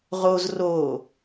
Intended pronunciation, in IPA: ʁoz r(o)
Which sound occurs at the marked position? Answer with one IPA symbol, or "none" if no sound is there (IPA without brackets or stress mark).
o